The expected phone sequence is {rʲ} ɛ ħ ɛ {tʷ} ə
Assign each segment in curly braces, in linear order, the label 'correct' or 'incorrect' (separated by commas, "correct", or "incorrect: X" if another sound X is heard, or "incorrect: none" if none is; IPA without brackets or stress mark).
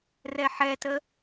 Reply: incorrect: r, incorrect: t